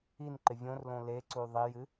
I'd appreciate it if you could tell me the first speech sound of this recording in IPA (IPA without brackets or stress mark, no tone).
i